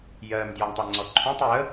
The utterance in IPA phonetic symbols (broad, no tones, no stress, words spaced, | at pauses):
jɜm djɔɳtˤɯŋ͡ǀɔǃʰũtˤ jə